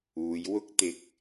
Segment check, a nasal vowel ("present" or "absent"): absent